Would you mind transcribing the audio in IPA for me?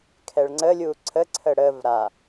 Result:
kʰɛɭŋ͡ǀəlʲu ǀʰəǀʰə ɽəv ɾa

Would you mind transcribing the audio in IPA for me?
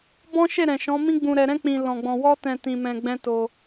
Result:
bɔ̃˦ʃe˦˨ɾɛ̃˨ʃɔ̃˨˦ mĩ˦ɡ͡bũ˧ɾɛ˧ɾɛ̃˦ k͡pĩ˧ lɔ̃˧ɡ͡bɔ̃˧ wɔ˦tɛ̃˧ tĩ˧mɛ̃˧ ɡ͡bɛ̃˦to˧

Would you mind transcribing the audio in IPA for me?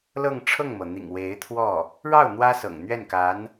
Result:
lɤ˥˧ŋʈ͡ʂʰɤ˥˩ŋmɤ˩n̪ḭ˨˩ŋ we˧˥ɪ̯t̪ʰwɔ˥˩ | ɻɑ˥˩ʊ̯ n̪wä˥sɤ̰˨˩ŋn̪ɥɛ˥˩n ka˧˥n

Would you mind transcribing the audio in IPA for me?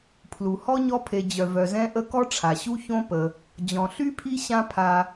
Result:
pʰlu˩hɔ˥ɲɔ˦pʰe˨ d͡ʑœ˩vœ˩zɛ̃˦ʔə˦ kɔ˥ʈ͡ʂʰa˩ɕu˥ çõ˦pə˩ | d͡ʑɔ̃˩ɬy˥pʰi˦ ɕã˦ pʰa˨

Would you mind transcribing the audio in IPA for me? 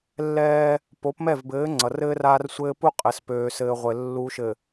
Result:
lːɛː˦ | po˨˦pmɛ˦˨vbɘː˨˦ ŋ͡ǀʌ˨rɘː˦raː˦rsʷɘː˦ pu˦qʼɘ˨spøː˨sɘː˨ ʁʷɘ˨ lːu˨ʃɘ˨

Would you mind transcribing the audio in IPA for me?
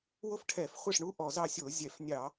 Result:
wo˥fʈʰɛ˧˩˧fχʷɛ˥˩ʂɳu˧˥ ʔɔ˧˩˧zɑ˥˩sʲo˧˩˧ zʲɛ˧˩˧fnʲɑ˧˩˧

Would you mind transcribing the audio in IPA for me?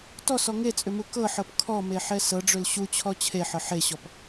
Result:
tɔsɔ ŋet͡sʼʏmu kɤħɤp kʰɔmeħɛ sɤɖ͡ʐʏl ɕut͡ɕʰɔ t͡ɕʰeħɤ ħeɕɔp

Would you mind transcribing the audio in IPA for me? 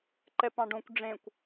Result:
ǃɛpɑ̃ɖõkʷ ɖ͡ʐẽkʷ

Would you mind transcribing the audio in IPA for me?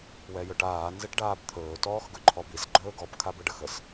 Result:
wɛjɵʈaː nzɘʈɖaːbt̪ʰɵː tɔːxɡɵǃʰɔbis ɡ͡ǃɵːɡɔb kʰabəɖəxəs

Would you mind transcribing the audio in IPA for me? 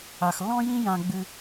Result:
a˨xlːɔ̃˦jĩ˦ jã˦ɡ͡bɨ˦

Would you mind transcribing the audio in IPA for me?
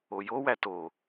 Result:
ojowæ to

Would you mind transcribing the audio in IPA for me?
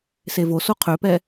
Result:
sevoso qʰøpɛ

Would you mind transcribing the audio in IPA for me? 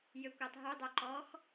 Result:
jøkʷɛtˤɦydˤœ ǃɔx

